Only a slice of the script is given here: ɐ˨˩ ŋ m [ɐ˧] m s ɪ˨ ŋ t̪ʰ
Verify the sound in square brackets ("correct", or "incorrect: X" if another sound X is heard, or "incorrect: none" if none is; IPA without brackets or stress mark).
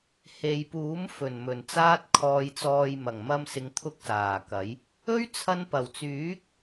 correct